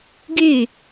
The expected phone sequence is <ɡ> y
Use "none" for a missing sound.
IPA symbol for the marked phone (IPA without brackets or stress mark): ɡ